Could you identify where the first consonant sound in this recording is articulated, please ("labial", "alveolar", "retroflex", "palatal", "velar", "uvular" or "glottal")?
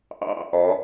glottal